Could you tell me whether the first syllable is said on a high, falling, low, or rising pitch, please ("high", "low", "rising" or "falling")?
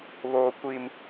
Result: high